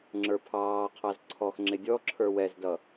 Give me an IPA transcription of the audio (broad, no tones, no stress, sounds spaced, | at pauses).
ŋ͡ǁ ə˞ pʰ ɑː qʰ ɑ z ǀʰ ɔ x ŋ͡ǁ ɪ dʲ ɔ ǁʰ ə˞ w ɛ z d ʌ